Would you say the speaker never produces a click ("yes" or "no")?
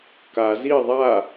yes